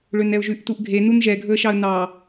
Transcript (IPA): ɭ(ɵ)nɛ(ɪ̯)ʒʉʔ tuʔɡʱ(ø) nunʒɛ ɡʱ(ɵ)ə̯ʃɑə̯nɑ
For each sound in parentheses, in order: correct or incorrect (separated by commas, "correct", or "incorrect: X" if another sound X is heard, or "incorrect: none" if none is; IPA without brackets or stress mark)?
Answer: incorrect: ø, incorrect: ʊ̯, incorrect: e, correct